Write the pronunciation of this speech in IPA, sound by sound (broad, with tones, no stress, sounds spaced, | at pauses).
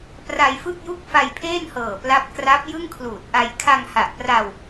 p r a˧ j f ɯ˥˩ k̚ j u˥˩ k̚ f a˧ j pʰ eː˥˩ n h ɤː˨˩ p l a˦˥ p̚ k r a˦˥ p̚ j ɯ˥˩ ŋ kʰ l uː˨˩ t̚ ʔ a˧ j kʰ a˧ ŋ h a˨˩ ʔ p r a˧ w